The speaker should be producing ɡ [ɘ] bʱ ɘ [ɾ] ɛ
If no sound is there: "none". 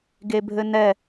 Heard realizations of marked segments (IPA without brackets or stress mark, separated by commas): e, n